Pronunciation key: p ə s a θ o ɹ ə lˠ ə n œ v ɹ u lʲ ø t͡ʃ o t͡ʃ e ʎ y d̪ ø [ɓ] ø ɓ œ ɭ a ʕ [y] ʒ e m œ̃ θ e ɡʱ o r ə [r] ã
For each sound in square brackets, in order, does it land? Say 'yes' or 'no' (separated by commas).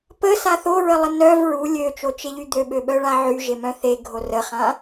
yes, yes, no